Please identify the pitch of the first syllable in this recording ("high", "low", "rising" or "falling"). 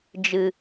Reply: low